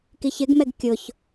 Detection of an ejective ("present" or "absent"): absent